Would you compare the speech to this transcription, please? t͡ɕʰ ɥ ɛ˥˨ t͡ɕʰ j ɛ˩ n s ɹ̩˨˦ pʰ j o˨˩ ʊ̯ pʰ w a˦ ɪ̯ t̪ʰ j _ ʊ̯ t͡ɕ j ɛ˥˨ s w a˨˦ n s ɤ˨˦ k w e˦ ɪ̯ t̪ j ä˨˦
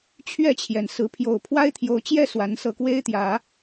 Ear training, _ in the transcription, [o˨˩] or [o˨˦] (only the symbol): o˨˦